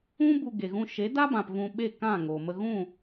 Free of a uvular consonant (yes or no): yes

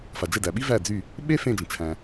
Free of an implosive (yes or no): no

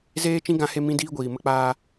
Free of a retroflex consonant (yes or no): yes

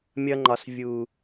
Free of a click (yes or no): no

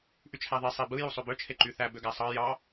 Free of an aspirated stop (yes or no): no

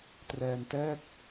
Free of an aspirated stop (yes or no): yes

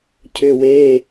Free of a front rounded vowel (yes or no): no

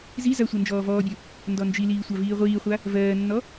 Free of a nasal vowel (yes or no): yes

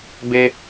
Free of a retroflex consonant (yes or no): yes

